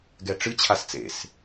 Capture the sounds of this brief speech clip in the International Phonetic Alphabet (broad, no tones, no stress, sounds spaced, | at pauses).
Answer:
ɡ ɛ ʈ͡ʂ ɨ t͡ɕʰ a s t͡s ḛ s